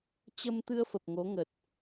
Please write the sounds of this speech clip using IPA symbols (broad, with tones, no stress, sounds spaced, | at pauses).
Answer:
t͡ɕ ə˧ m t̪ ɨ˧ ə̯ f ə˨˩ p̚ ŋ o˨˦ ŋ ə˨˩ t̚